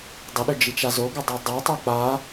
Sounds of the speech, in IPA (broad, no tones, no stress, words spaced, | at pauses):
dˤəɗʏd͡ʒit͡ʃa zoɡədˤi dˤotˤʉ k͡pa